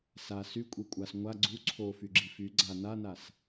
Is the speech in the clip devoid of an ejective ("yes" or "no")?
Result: no